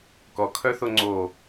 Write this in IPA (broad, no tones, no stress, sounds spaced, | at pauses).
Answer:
k ɔ kʰ œ θ o ŋ͡ǀ o